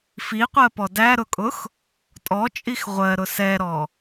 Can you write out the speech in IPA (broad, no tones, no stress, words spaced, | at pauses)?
fiqʷɜpɔ dæɾʊkʼʊx | tʼɔt͡ʃʼix ʁʷɜɾʊ sɛɾɔ